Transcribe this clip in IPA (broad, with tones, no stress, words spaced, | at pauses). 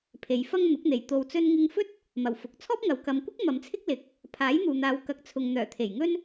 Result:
pʰe˨˧jfɐ˥ŋ n̪ʊ˨˥k̚n̪e˨jt̪o˧w t͡sɵ˧nŋɪ˧ŋfɵ˥t̚ | mɐ˨˩wfʊ˨k̚ t͡sʰɔː˥p̚ŋɐ˨w kɐ˨˧mkʷɪ˥k̚ mɐ˨˧mt͡sʰɪ˥k̚ lɪ˧k̚ | pʰaː˨˥jn̪uː˨n̪aː˨˧w kɐ˨˥k̚t͡sʰʊ˨ŋ n̪œː˨˩t̪ʰe˨˩jŋɵ˥n